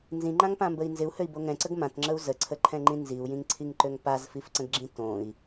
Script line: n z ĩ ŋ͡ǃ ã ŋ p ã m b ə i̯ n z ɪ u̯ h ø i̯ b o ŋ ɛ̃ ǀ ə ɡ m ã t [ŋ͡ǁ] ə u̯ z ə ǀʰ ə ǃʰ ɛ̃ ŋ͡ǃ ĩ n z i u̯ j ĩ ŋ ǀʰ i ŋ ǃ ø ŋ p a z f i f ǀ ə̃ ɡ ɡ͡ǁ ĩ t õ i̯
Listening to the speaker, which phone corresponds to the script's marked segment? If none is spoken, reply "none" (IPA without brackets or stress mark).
ŋ͡ǁ